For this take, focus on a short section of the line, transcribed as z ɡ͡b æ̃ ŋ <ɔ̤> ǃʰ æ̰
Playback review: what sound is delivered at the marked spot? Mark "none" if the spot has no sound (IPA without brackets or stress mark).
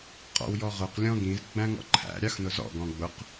ɔ̰